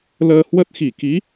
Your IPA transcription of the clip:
l əː˧ h w ə˦˥ t̚ x i˧˩ k i˨˦

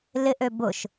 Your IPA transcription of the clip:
l ɪ ʔ ø b ʊ ʃ

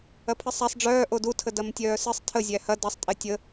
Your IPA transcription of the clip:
ɐ pʰ ɨ sˤ æ sˤ ɖ͡ʐ œː ʔ o d u tʰ ə d ɐ m tʲ œː s ɨ sˤ tʰ ə zʲ æ h ɐ d ɐ sˤ tʼ e tʲ ə

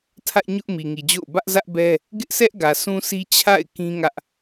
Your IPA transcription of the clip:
tʰ ä˦ ʔ ɲ ʊ˦ ʔ m i˨ ŋ i˨ d͡ʑ o̰˦˨ ʊ̯ b ä˦ ʔ z ä˦ ʔ b ɛ˦ | ɡ ɪ˦ ʔ sʰ ɛ˦ ʔ ɡ ä˨ sʰ ũ˦ sʰ i˦ t͡ɕʰ a̰˦˨ ɪ̯ k ĩ˦ ŋ ä˦ ʔ

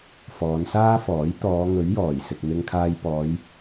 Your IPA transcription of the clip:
f ɔː˨˧ n s aː˥ f ɔː˨˥ j t̪ ɔː˨˧ ŋ ɵ˨˥ ɥ j ɔː˨˩ j s ɪ˨ k̚ n̪ ɪ˧ ŋ kʰ aː˧ j p ɔː˨˧ j

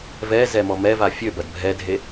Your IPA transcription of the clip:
v ɛ z ɛ m ɔ m ɛ v a fʲ ø b ɐ d bʱ ɛ dʱ e

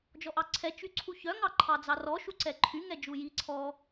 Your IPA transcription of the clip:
d͡ʒ ɔ ʔ ɑ ǀʰ ɛ t͡ʃ y ǀʰ u ç œ ŋ ɑ ǃʰ ɑ d͡z ɑ r ɔ ʃ u ǀ ɛ ǃʰ y ŋ ɛ d͡ʒ u j i ǀʰ ɔ

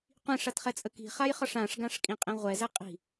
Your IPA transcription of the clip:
qʷ ĩ ʂ a t χ ɛ t͡sʼ ə k i̤ χ a j χ ɒ ʂ ã ʂ ɡ ã ʂ kʼ ĩ qʼ ĩ ʁʷ ɛ z ɛ qʼ i̤

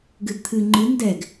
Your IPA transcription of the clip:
ɡ ɨ d t̪ʰ ɨ ŋ͡ǃ ɨ n d ɛ ɡ

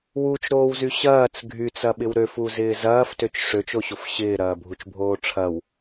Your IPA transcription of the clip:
w u t͡ʃ ɾ oː w z y ɕ ɐː t͡s ɡʱ y t͡s ɐ ɓ ɪ w ɾ ø f u z ɪː z ɐː f t ø t͡ʃ ʂ ø t͡ʃ o ɕ o f ɕ ɪː ɾ ɐː bʱ u t͡ʃ bʱ oː ʈ͡ʂʰ ɐ w

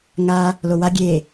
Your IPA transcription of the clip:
ŋ a | l o w a ɡʲ e

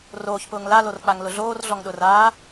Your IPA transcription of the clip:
r oː ç p ʊː ŋ l a l o r k͡p a ŋ l ʊ ɮ oː r ɮ ɔ ŋ ɗ ʊ r aː

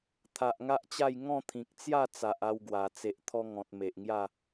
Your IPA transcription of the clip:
t̪ʰ a˨ ʔ ŋ a˦ ʔ t͡ɕ a˥˧ j ŋ ɔ̃˥˧ t̪ʰ ĩ˨ k̚ t͡s j a˥˧ t͡s a˨ ʔ a˧ w ɡ w a˨˩ t͡s e˨ ʔ t̪ʰ ɔ˧ ŋ ɔ̃˨ t̚ m e˨ ʔ ŋ j a˥˧

